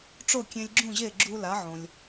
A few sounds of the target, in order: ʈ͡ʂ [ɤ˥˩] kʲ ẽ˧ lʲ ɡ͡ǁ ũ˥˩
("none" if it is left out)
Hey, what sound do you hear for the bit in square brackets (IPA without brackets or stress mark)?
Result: o˥˩